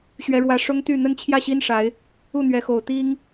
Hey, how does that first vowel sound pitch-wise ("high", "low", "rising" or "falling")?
high